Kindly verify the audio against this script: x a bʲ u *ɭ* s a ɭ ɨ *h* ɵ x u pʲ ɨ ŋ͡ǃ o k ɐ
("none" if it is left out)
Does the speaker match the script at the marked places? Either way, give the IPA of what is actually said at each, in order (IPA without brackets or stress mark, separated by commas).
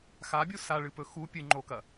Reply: none, p